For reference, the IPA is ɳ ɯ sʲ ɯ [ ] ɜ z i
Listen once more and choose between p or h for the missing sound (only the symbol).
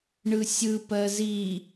p